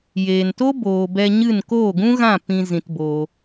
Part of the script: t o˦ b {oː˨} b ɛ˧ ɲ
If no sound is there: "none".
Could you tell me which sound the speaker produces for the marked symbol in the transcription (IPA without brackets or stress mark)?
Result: oː˨